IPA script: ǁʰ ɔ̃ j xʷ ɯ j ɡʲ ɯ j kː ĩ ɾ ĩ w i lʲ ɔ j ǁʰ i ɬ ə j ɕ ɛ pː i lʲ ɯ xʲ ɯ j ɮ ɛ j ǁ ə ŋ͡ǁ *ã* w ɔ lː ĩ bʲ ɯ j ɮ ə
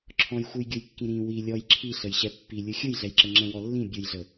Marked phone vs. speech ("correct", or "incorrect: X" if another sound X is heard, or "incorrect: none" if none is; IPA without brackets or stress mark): incorrect: ə̃